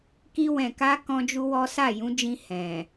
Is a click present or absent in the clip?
absent